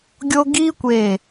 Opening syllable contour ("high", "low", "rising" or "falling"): high